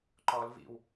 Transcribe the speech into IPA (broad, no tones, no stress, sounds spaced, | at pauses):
ǃ ɔ l v ḭ w